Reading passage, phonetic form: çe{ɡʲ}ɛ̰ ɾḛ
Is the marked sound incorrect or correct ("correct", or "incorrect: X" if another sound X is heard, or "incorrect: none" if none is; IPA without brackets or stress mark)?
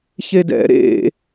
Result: incorrect: d